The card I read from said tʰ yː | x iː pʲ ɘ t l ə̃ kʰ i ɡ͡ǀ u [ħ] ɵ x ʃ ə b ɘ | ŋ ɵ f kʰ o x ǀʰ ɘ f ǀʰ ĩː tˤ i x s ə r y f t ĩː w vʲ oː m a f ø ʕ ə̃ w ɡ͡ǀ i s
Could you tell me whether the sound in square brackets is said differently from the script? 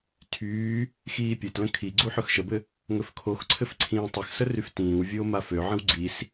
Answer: no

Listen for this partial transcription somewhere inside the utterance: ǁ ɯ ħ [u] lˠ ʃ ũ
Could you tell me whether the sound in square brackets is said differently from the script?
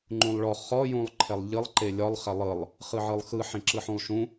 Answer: yes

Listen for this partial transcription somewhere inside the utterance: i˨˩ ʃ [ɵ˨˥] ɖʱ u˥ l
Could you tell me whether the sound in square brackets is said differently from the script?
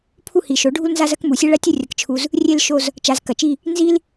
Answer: yes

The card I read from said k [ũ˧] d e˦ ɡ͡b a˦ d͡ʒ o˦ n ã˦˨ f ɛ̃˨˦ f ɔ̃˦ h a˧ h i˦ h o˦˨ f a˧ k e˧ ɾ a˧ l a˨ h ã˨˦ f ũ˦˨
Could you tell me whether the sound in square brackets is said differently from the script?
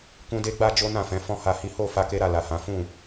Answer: yes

